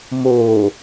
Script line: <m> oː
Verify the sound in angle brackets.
correct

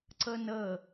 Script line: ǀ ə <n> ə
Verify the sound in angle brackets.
correct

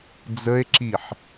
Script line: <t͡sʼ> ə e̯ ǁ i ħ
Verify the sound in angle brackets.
incorrect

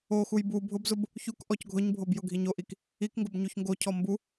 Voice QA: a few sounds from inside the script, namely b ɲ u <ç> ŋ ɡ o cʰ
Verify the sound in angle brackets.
correct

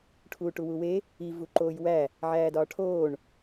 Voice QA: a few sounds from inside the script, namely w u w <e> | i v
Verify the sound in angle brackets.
correct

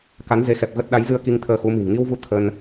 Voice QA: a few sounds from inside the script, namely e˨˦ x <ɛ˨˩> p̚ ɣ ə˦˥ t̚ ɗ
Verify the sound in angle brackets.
correct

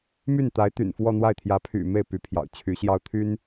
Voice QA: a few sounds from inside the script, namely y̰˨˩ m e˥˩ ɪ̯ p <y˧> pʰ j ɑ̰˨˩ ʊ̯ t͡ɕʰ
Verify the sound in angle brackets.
incorrect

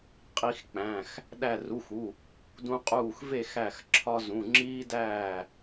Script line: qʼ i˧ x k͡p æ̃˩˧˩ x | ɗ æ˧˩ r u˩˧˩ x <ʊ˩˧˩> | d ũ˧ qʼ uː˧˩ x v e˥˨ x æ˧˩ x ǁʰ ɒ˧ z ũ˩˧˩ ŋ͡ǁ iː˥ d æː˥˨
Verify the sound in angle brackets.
incorrect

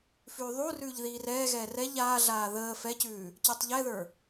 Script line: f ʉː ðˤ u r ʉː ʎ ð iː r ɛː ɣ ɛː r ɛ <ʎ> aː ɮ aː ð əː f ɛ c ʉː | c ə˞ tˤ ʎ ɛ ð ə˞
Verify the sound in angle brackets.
correct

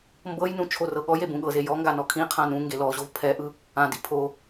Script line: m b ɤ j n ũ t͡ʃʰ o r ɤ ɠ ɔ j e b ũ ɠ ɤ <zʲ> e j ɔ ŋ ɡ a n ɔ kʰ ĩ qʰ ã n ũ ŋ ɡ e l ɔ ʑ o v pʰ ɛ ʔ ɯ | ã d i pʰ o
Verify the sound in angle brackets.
incorrect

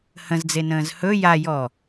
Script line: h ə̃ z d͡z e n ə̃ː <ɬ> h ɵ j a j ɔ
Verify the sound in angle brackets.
incorrect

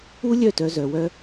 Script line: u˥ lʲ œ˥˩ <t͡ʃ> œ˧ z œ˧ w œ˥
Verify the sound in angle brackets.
incorrect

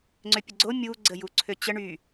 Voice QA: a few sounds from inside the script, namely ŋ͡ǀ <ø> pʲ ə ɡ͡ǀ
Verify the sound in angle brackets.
correct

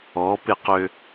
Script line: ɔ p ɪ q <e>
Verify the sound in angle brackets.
incorrect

